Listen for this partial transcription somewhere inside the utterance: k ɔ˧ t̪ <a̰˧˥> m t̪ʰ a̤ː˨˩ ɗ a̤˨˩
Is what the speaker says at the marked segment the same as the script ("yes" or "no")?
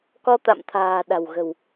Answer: no